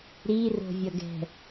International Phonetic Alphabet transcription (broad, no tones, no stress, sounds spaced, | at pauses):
ɾ i r o̤ vʲ ʌ ɡ ɛ̤